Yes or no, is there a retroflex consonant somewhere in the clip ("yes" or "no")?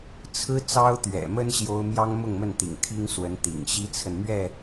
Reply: no